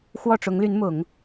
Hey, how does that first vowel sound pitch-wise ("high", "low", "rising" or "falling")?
falling